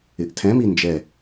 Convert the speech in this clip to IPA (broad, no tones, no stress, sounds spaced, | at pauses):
ɪ ʔ tʰ ɛ̃ m i n d͡ʒ ɛ